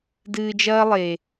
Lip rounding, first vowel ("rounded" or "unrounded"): unrounded